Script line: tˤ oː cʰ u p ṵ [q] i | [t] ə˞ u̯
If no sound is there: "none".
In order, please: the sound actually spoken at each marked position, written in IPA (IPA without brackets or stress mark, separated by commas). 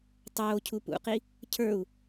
q, cʰ